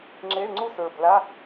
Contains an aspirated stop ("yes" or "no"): no